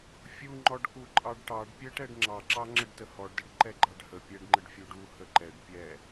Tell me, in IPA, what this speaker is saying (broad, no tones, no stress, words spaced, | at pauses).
fʲuŋ͡ǃɔɖku ǃʼɑɖʈɑɖ pʲəʈɛɖ ŋ͡ǁɑǁɑŋ͡ǁəɖ təhɔɖdəɖ ǃɛɡ͡ǃɑɖhə pʲɛɖŋ͡ǃəɖfʲu ɖu həǃɛɖ pʲɛ